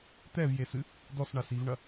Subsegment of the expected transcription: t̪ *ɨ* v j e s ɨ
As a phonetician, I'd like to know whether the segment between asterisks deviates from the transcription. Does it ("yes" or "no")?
yes